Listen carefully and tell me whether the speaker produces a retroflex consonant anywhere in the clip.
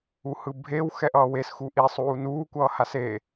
no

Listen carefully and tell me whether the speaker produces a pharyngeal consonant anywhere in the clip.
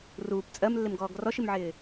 yes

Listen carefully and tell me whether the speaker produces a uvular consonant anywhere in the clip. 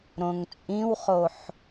yes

